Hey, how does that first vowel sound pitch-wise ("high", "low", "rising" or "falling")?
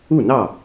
falling